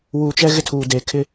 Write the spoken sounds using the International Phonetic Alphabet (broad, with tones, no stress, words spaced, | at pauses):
wuː˨t͡ʃɛ˦ ɣɪ˦tʰuː˨ de˨kʰɪ˦